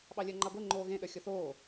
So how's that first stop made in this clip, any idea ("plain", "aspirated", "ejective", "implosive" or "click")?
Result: implosive